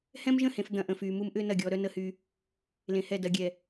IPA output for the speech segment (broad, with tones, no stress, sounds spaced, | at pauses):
h ɛ̃˦ m ʒ ə̃˦˨ h ẽ˨ f d̪ ɐ̃˨ ʔ ə̃˨ f yː˨ m u˦ m ʔ ʏː˦ n ɐ˦˨ ɡʲ ɔː˦ ɾ œ˦ n ə˦ h y˦ | l ẽ˨ h ɛ˦˨ d ɐ˨ ɡʲ ɛ˨